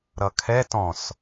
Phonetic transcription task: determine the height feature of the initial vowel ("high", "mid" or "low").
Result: mid